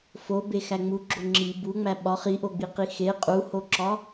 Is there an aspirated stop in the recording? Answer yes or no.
no